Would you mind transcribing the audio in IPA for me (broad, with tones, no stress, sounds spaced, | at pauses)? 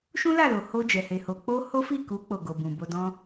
ʃ ũ˦ l a˦˨ l o˨ h o˧ d͡ʒ ɛ˨ h e˨ h o˨ k͡p o˧ h o˦ f i˦˨ k u˨˦ k͡p o˦˨ ɡ o˨ b ũ˨ b o˧ d ɔ̃˦